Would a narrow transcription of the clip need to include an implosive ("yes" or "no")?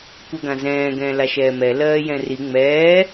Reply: no